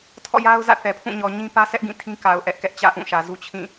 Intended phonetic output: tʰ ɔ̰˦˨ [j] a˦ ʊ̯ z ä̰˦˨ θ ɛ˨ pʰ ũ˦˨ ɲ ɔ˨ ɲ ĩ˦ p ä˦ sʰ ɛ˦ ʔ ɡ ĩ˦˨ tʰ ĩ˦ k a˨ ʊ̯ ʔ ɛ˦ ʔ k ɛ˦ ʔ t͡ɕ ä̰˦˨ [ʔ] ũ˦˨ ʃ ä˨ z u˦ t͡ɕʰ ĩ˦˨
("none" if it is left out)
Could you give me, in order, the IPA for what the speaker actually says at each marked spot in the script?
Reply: j, ʔ

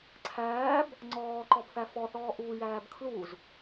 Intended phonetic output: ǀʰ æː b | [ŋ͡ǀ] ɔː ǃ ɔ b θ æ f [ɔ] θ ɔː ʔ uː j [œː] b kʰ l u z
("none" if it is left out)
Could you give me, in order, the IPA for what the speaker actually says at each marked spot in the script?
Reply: ŋ͡ǀ, ɔ, æː

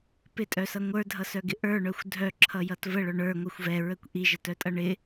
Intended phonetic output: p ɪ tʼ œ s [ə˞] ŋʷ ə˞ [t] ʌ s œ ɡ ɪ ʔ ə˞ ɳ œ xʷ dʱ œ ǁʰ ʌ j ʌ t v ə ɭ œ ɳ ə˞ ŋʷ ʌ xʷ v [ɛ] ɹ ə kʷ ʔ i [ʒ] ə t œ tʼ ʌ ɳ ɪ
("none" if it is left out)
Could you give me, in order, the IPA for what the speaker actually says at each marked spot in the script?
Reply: ʌ, dʱ, ɛ, ʒ

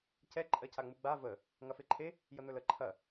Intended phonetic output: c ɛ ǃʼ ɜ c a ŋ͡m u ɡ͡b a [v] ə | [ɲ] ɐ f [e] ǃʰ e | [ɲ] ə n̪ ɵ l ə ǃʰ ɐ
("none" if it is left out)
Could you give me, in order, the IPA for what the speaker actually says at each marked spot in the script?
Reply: v, ŋ, e, j

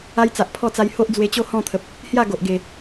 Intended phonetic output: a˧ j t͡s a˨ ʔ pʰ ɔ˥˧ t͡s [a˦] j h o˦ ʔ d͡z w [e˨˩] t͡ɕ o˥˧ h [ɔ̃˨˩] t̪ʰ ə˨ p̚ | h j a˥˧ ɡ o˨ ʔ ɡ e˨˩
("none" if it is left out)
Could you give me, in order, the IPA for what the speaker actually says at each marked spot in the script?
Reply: a˧, e˧, ɔ̃˥˧

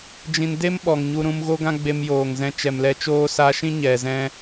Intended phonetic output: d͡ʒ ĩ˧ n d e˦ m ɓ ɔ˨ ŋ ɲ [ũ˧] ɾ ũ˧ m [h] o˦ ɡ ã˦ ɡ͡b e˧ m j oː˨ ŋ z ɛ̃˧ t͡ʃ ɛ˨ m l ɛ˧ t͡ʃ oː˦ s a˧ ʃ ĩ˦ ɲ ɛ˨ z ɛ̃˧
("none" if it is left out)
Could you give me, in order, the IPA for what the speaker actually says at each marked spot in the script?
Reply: u˧, ɣ

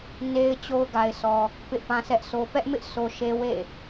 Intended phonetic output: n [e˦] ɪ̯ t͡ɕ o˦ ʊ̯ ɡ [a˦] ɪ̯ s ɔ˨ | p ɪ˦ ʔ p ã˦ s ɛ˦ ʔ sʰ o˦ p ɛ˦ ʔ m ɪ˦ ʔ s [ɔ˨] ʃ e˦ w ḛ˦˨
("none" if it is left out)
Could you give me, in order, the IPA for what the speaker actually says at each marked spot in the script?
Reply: e˦, a˨, o˨

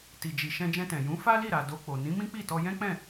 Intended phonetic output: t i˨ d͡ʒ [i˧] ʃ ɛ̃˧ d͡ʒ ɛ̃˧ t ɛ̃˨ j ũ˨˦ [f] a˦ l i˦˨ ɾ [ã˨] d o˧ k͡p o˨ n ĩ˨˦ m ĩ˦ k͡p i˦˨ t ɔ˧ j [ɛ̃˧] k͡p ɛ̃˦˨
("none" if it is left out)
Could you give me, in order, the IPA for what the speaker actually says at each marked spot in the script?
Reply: i˨, f, a˨, ɛ̃˦

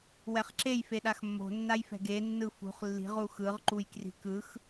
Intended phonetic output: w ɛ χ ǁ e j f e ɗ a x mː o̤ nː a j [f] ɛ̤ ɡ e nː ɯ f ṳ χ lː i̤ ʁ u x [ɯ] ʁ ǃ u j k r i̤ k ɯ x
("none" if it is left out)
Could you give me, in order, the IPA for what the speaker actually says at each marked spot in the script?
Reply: f, ɯ

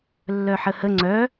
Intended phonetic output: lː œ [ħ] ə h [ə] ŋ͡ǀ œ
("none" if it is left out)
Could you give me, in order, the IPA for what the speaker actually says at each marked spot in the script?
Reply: ħ, ə

